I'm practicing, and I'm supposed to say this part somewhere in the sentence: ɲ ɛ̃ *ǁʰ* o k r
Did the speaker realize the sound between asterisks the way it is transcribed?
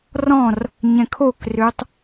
no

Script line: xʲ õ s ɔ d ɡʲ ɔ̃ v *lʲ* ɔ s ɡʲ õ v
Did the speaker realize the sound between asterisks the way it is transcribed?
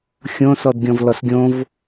no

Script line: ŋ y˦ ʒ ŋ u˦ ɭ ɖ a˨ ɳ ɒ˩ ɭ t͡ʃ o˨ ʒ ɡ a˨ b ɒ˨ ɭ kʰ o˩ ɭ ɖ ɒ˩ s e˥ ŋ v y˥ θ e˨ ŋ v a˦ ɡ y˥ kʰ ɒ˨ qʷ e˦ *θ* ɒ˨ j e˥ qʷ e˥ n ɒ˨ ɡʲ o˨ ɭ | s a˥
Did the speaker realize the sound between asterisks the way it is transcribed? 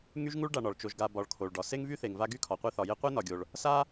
yes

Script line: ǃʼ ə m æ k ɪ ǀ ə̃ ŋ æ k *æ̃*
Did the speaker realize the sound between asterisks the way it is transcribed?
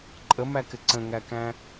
yes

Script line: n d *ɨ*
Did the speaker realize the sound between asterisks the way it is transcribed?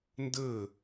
no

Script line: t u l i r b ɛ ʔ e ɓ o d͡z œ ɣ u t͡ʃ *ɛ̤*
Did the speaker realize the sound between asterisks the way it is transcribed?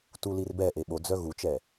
no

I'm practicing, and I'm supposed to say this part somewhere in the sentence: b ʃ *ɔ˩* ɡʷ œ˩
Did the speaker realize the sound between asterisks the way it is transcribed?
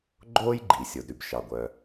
no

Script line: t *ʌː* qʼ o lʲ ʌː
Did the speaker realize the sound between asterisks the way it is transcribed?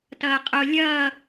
yes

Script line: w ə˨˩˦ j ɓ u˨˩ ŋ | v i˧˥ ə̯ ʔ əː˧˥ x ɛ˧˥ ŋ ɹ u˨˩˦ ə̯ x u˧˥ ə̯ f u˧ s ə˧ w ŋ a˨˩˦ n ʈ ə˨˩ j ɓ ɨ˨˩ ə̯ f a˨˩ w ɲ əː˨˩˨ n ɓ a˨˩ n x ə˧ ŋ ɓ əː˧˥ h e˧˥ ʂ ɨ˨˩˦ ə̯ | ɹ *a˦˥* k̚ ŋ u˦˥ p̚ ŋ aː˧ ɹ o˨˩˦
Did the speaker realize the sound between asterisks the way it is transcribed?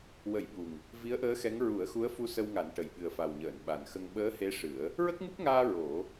no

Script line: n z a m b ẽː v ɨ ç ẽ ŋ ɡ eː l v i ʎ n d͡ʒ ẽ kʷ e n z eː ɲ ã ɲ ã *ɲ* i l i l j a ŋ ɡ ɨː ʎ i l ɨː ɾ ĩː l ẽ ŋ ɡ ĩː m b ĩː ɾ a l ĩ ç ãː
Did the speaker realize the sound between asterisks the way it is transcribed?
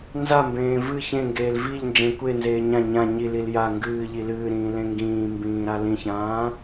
yes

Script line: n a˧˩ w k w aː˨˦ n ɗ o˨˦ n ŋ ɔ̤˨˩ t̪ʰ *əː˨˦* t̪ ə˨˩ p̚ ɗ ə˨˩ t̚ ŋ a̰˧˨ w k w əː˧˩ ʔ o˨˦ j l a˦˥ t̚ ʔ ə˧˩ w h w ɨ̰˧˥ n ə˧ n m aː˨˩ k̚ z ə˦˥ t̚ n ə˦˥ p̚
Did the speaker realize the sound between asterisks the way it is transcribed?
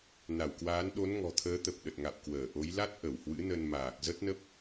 yes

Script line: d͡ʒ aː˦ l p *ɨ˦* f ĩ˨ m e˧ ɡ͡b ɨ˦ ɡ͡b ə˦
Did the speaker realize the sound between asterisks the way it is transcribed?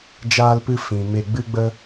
yes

